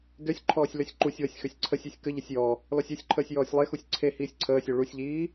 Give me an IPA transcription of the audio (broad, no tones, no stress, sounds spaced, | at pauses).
d ø sʲ ǃʰ ɔː sʲ l ø sʲ ǃ u sʲ w ə sʲ x ø sʲ ǀʰ ə sʲ i sʲ k ə ʎ ə sʲ j ɔ | l ɔ sʲ ø sʲ ǃʰ əː sʲ j ɔː sʲ lˠ e x u sʲ ǀʰ e h iː sʲ ǀʰ əː sʲ ø ɭ u sʲ ʎ iː